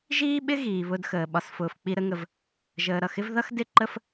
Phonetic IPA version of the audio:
ʒ iː˦ ɓ ɪ˦ ɣ iː˨ β ʊ˦ d x əː˨ ɓ ɒ˨ s f ʊː˨ f k͡p i˨ ɾ ə˨ ŋ ə˨ v | ʒ əː˨ ɾ ʌ˦˨ x ɪ˦ v ð ʌ˦ x d ɪ˦˨ ǃ ə˦ f

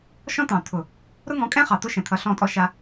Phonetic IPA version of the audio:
ʃ ɔ̃˦ t̪ ɑ̃˨ t̪ʰ ʊ˨ | ɾ ʊ˦ ŋ ɔ̃˨˦ kʼ ɛ̃˦ χ ɑ˨ t̪ ʊ˦ ʃ ɛ̃˨ t̪ʰ ʌ˨˦ ɬ ɔ̃˦˨ tʼ ɔ˦ ʃ a˦

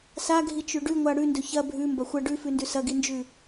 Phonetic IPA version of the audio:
s a ɡʱ i t͡ʃ ʉ ɖ ʉ ŋʷ a ɽ ʉ n d ɵ ç ɐ bʱ ʉ m b ɐ xʷ ɐ ɖ ʉ f ʉ n d ʉ s ɐ ɡ i n d͡ʒ ʉ

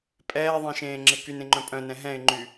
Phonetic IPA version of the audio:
pʼ ɛː ðˤ ẽ ʃ ẽː ŋ͡ǁ e k y n ẽ ŋ͡ǃ œ̃ pʼ œ̃ n ɛ̃ ɦ ɛ̃ ɪ̯ ŋ͡ǃ y

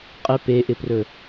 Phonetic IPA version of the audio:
qʼ ɪ p e ʔ ɪ p r ɵ

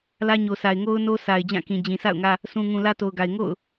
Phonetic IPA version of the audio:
l ä˦ ɲ o˨ sʰ a˨ ɪ̯ ŋ o˦ ʊ̯ n o˦ s a˨ ɪ̯ d͡ʑ ã˦˨ k ĩ˨ d͡ʑ ĩ˨ s a̰˦˨ ʊ̯ ŋ ä˦ | s ũ˨ ŋ ũ˨ l ä˦ t o˨ ʊ̯ ɡ a˨ ɪ̯ ŋ o̰˦˨ ʊ̯

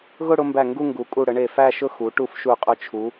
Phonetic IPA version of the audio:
ɣ ʊ˥˧ ɽ ʊ˧ m b æ˧˩ ŋ ɡ u˥˧ ŋ ɡ u˩˧ kʼ u˧˩ ɽ ə˩˧ ɳ e˧˩ f æ˥˧ ʃ ʊ˥˧ x u˩˧ ʈ u˧ f ʃ u˧˩ qʼ ʊ˧ t͡ʃʰ u˩˧

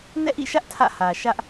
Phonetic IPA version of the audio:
n ɛ̰˦˨ ʔ ḭ˦˨ ʃ ä˦ ʔ tʰ ä̰˦˨ h ä˨ ʃ ä˦ ʔ

